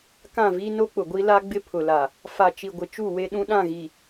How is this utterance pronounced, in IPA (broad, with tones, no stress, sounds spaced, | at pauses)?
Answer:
k ã˦˨ v i˦ n o˦ k͡p ʊ˨ ɡʷ i˦ l a˦ ɡ͡b ɪ˦ pʰ ʊ˨ l a˨ | f a˨ t͡ʃ i˨ ɡʷ ɪ˨ t͡ʃ u˦˨ w e˦ ɗ ũ˦ ɗ ã˦˨ ɣ i˨